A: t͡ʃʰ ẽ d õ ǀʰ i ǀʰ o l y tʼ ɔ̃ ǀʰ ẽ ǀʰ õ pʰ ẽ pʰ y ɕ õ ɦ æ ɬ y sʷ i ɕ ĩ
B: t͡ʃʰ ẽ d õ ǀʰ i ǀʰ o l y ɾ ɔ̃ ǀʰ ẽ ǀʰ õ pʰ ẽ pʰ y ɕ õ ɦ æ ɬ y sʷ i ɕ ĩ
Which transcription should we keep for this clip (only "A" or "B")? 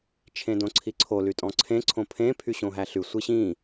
A